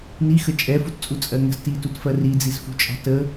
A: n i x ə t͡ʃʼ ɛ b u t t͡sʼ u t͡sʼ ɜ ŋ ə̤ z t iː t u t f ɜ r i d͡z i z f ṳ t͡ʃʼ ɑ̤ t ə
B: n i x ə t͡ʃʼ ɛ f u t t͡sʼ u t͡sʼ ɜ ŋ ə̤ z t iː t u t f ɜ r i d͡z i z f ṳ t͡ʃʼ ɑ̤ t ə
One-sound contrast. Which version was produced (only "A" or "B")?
B